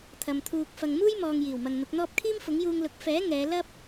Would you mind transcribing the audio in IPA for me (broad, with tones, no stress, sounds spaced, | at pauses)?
t̪ʰ ɐ˨ m t̪ʰ uː˧ k̚ f ɐ˨ ŋ m uː˥ j m ɔː˨ ŋ j iː˨˩ w m ɐ˨ ŋ n̪ ʊ˨˥ k̚ n̪ ɔː˥ p̚ kʰ iː˥ m f ʊ˨˥ ŋ j uː˧ ŋ l ʊ˨˥ k̚ f ɛː˨˥ ŋ ɛː˨˧ l ɐ˥ p̚